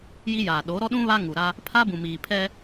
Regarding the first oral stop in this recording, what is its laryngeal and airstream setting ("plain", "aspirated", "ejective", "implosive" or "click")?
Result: implosive